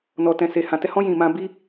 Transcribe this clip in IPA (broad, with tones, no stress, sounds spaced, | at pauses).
n ɔ˧ t ɛ̃˧ s e˧ h ã˧ t ɛ˦ h ɔ̃˦ j ĩ˧ m ã˦ b i˦